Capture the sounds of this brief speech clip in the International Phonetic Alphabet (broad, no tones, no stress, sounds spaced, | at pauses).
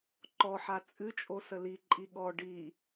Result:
ǃ ɔ ħ a t͡sʼ ɨ t͡ʃʼ o s ə l i ǃʼ i ɠ ɔ ɖ i